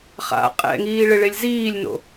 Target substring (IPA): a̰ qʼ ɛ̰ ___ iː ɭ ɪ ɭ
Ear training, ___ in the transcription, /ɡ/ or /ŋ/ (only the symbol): ŋ